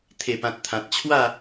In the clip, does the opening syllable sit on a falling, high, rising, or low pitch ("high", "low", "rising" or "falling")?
low